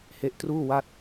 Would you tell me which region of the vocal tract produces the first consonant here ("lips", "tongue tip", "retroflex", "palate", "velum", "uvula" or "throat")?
throat